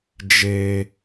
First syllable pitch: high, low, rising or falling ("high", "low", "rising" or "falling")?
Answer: high